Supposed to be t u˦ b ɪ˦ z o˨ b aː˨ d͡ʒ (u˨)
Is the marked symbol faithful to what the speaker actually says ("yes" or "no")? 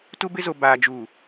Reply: yes